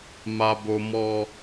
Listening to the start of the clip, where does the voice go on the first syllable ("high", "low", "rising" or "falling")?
high